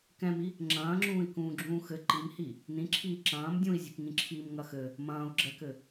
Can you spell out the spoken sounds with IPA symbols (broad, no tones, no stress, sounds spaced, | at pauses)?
k ɛ̃ m i | ŋ͡ǁ ɐ̃ː ŋ͡ǁ ũː i̯ k ũː ɡ͡ǁ ũː x ɘ ǃ i m h i | n ĩ ǁʰ iː ǁ ɐ̃ː m dʲ ũ i̯ zʲ u k ŋ ĩ ǁʰ iː m ŋ ɐ x ɘ | m ɐ̃ː u̯ ɡ͡ǁ ɛ k ɘ